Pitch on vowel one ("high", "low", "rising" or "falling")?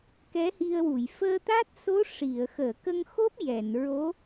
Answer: rising